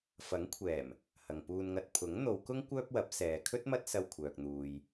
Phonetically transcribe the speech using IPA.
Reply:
fɐ˨˥ŋ kʷʰɛː˨˩m | hɐ˨ŋpuː˧nŋɐ˧t̚ pʰʊ˨˥ŋn̪o˨˧wkʊ˥ŋ kʷœː˥p̚wɐ˨˥p̚ sɛː˨kʰɵ˥t̚ mɐ˥t̚ sɐ˧wkʷʰœː˨k̚n̪uː˨j

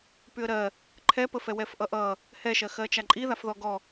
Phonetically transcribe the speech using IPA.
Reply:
pyə̯ɾɜ | ǃʰɛpəfɛ wɛfʔʌʔʌ | hɛʃɜxɜt͡ʃa ǃʼiðafðɔ ɡɔ

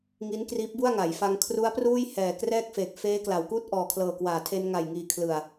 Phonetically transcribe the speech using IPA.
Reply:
ŋi˦˥n kriː˦˥p̚bu˥˩a̯ŋa˩˦jfa˧ŋ kʰru˦˥a̯pruː˥˩j hɛː˨˩ krɛː˥˩k̚feː˨˩k̚ feː˦˥kla˩˦wkuː˥˩t̚ ʔɔː˨˩kʰlɤː˨˩kwaː˨˩tʰe˧n ŋa˨˩jŋiː˨˩kʰlɯ˨˩a̯

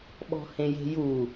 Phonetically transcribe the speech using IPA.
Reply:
ɓɔ̤hẽje̤ju

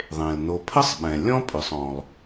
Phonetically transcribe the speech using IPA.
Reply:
ðˤẽ˩lno˨pʰə˥sˤɓɛ̃˩ lʲɔ̃˥pʼʏ˩sˤ ɔ̃˩lˠ

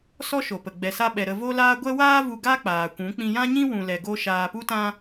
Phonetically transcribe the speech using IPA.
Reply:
sɔ˦ʃo˨pə˨ ɡ͡bɛ˨sa˧ɓɛ˨ ɾə˧vo˦laː˦ ɡʷɛ˦ waː˦vu˧ ɡa˦k͡paː˨kʷũ˨˦ k͡pĩ˧jã˦ɲĩ˦ wũ˧lɛ˧ɡo˦ ʃaː˧pu˦tã˦

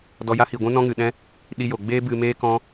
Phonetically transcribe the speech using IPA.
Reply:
dɔ˧ja˦hi˨ɡʷũ˦ nɔ̃˦ŋɨ˨ɗɛ̃˦ | ɗi˦jo˨ ɡ͡beː˦bɨ˧meː˦ kɔ̃˦

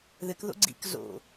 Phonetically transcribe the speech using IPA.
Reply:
ðɘkðo̰ ɡ͡ǀḭk zo̰

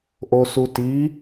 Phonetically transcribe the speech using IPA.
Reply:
ʔosuti

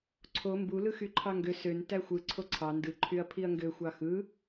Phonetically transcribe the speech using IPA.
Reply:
ǀʰo mbu lɯxyǃʰɑŋɡø søn tæxʷɯ ǀʰoǀʰɑ ndɯ ǃʰyɐ̯pʰiɐ̯ŋɡø xʷɑxɯ

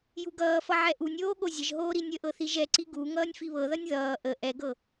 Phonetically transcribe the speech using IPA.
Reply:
juɡʌːfʌ ʕɛʔunʲoː ɠozʲəʒɦoː ɾinʲəʔɤ θiʒɛǀi ɡu ŋʌːnʲfiβɤðʌnʲ ðʌː ʔə ʔɛɡɤ

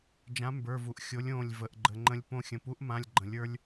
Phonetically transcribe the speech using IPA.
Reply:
d͡ʒã˨˥mbə˞˩˧˩vu˩ʔ xʲo˨˥lʲõː˩˧˩lʲ və˩˧˩ʔɡ͡ǃə˩˧˩ŋ͡ǃə̃˧lʲpõ˧ xʲə̃˩pu˨˥ʔmã˩˧˩lʲ ɡ͡ǃə̃˩lʲə˞˧lʲ

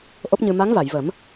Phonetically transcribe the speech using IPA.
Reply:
ʔo˦˥p̚ɲɨ˧ ma˧˥ŋva˨˩˨jvə˨˩˦m

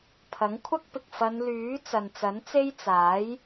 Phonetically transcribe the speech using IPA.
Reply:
pʰɐ˨˥ŋkʷʰɐ˥k̚pɪ˨k̚ fɐ˨˧n lyː˨˥ t͡sɐ˨nt͡sɐ˨˥nt͡se˥j t͡saː˨˥j

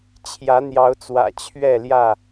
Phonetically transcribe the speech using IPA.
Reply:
t͡ɕʰjä˨˦n̪jɑ˨˦ʊ̯t͡swä̰˨˩ t͡ɕʰɥɛ˥˨ljä˥˨

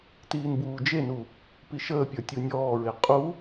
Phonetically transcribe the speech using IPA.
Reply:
tiːnbuːd͡ʒenu | piʃəːpʲə˞ tʲunʲɔːɹe qʼu

